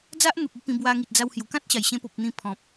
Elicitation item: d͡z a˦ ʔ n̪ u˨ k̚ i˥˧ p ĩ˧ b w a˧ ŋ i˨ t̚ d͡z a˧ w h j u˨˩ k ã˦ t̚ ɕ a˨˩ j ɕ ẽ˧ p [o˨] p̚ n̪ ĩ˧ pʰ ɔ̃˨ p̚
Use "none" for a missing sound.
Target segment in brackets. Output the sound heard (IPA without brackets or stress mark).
o˨